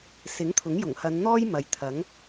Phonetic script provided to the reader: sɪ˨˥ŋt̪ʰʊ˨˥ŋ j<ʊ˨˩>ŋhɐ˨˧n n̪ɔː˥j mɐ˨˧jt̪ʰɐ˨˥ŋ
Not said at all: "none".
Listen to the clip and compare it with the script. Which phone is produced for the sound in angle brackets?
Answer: ʊ˨˩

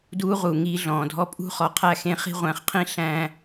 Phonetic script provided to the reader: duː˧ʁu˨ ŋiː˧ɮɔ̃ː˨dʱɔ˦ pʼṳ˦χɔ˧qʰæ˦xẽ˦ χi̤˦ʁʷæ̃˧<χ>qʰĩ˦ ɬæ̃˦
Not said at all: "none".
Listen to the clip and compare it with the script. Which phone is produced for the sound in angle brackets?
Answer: χ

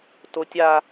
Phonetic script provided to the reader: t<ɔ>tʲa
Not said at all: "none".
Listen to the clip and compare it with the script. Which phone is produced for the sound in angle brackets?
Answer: o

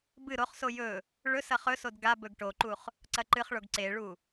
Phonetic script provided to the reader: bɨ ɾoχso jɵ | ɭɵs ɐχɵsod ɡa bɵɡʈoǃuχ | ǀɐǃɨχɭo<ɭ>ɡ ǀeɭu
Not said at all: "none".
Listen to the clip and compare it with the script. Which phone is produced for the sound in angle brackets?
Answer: none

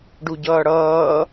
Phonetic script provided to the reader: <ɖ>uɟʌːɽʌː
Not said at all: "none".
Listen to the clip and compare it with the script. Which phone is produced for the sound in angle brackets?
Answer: ɖ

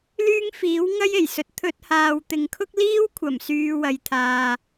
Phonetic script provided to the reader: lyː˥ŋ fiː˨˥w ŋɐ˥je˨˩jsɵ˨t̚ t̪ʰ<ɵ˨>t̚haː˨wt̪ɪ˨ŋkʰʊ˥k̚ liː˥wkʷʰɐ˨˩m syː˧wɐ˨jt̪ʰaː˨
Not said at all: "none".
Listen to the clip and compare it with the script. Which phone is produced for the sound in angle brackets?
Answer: ɵ˧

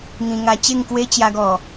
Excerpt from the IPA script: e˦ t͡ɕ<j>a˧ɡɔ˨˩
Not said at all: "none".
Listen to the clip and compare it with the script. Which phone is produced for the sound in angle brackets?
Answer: j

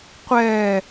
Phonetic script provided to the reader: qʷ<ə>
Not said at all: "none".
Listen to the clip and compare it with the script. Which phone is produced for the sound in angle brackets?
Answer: ɛ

